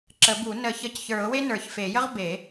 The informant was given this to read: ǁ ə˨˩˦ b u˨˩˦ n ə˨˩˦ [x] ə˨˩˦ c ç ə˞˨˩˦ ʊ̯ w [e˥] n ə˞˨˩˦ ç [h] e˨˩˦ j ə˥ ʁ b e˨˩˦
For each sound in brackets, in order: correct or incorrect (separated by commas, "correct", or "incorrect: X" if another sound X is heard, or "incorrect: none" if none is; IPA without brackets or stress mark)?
incorrect: ç, correct, incorrect: f